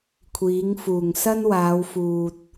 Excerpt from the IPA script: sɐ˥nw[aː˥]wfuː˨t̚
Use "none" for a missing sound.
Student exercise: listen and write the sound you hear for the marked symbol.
aː˨˧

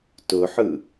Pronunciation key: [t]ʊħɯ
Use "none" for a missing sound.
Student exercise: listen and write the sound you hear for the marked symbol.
t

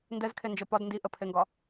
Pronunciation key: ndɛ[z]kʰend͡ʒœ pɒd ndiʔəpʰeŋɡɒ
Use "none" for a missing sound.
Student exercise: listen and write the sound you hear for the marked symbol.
z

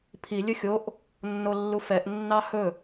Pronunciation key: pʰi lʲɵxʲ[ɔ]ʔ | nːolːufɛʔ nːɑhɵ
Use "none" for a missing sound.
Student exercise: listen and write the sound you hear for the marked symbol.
o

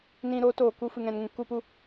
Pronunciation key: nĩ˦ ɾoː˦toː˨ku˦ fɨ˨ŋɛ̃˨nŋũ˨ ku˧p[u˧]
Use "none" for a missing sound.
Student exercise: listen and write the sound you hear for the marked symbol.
u˧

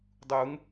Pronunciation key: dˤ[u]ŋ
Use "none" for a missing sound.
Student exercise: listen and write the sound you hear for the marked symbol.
u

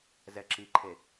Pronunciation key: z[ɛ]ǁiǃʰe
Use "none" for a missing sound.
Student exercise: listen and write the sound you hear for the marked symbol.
ɛ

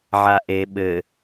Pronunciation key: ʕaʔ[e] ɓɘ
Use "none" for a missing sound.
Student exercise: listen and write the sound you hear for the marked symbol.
e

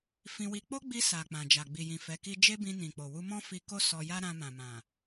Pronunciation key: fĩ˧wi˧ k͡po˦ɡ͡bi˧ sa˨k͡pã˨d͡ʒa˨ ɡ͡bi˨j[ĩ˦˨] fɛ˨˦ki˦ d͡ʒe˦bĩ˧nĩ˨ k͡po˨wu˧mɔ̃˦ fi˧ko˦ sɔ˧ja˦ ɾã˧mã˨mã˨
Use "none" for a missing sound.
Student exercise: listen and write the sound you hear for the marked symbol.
ĩ˨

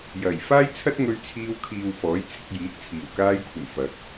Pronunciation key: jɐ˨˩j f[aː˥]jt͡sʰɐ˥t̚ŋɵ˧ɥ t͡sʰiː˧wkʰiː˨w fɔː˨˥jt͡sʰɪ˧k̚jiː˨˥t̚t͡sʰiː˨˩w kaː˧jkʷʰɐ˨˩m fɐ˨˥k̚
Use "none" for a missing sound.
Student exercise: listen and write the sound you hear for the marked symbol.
aː˥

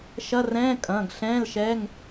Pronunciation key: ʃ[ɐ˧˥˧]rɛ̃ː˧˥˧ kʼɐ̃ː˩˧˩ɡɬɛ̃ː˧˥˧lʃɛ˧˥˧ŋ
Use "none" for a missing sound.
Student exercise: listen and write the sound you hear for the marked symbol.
ɐ˧˥˧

